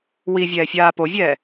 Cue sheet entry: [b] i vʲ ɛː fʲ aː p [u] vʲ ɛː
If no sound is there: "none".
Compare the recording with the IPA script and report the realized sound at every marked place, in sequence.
w, o

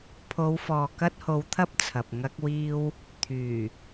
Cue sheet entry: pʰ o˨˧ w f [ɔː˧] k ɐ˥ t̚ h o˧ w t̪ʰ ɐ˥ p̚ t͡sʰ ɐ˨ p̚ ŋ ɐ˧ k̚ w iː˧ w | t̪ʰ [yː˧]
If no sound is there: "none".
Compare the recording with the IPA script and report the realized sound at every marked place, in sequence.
ɔː˨, yː˨˩

